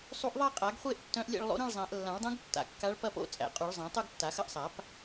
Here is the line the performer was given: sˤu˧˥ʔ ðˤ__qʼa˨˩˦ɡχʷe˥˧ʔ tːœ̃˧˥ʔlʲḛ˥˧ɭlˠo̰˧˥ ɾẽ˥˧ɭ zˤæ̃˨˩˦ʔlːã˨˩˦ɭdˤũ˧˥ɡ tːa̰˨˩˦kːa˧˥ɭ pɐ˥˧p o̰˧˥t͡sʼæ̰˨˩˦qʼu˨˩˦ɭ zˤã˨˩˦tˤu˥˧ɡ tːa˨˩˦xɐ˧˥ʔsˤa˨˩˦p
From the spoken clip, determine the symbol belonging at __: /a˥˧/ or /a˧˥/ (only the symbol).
a˥˧